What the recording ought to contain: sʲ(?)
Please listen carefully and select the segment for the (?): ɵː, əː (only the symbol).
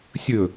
ɵː